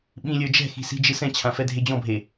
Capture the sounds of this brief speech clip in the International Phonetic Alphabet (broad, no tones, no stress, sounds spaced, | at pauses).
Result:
ɓ ĩ lʲ ə˞ d͡ʒ ɛ̤ x i̤ s i̤ d͡ʒ ɨ s ɛ̃ t͡ɕʰ ã f ɛ dʱ e d͡ʑ ɔ̃ bʱ e